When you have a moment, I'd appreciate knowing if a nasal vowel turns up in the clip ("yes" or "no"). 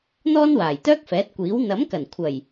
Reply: no